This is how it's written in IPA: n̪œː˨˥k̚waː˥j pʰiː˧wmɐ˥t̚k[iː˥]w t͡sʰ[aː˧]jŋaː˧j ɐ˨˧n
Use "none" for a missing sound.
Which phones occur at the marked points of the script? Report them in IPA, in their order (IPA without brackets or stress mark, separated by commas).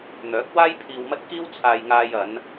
iː˥, aː˧